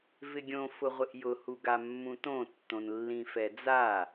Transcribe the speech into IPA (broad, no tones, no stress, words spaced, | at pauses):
vɪɡʲõ fʊʁʷɪʔjʊ huɡamːũtõ tːõnlːĩfɛd͡za